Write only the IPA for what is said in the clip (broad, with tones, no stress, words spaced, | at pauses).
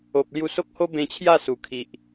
o˨p̚ lju˧so˦k̚ho˦ bẽ˧t͡ɕʰja˥˧ su˨˩kʰi˨ʔ